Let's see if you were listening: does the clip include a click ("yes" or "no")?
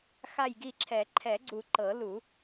yes